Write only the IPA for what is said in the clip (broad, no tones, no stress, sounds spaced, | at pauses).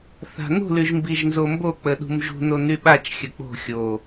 θ a̤ n ṳ l y ʒ m b i ʒ n z o m b o k͡p ə ɗ ṳ m ʒ ṳ n o n y ɓ a t͡ʃ xʲ ə k͡p o̤ xʲ o